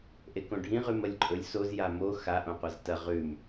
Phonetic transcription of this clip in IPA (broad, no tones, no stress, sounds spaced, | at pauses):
ʔ e k õ ɖʱ ĩ ʁ ʉ m ɐ lʲ ǃʼ ɵ lʲ s o z j a m o x a ʔ õ qʷ a z t ɐ ʁ ʉ m